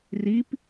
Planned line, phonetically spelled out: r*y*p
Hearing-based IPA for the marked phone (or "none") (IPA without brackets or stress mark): i